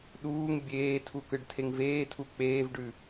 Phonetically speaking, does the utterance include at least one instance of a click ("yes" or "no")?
no